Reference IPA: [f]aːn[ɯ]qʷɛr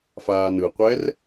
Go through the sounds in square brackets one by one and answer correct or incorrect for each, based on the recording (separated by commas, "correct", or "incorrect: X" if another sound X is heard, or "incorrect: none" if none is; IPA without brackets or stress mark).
correct, correct